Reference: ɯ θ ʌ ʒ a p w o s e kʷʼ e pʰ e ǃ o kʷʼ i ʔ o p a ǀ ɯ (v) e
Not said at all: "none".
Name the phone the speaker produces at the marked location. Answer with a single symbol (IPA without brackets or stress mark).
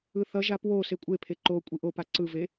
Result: v